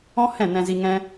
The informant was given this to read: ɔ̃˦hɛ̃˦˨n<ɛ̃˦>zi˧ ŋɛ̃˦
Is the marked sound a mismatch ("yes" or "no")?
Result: yes